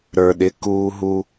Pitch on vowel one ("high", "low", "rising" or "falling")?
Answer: low